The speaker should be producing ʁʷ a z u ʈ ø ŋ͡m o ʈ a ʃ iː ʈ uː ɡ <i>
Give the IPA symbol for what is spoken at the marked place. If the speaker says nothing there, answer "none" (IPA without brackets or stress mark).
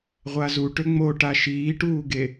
e